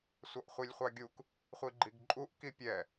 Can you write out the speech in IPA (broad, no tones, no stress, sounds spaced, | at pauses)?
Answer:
sʷ ʌ ʔ χʷ i lʲ χʷ ɑ ɡʲ u k | χʷ i ɡ͡ǃ i ɡ ǃʼ u ʔ k i pʲ ɛ